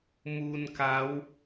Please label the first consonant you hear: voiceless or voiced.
voiced